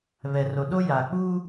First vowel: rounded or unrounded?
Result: unrounded